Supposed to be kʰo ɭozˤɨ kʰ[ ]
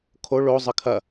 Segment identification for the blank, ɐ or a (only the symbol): ɐ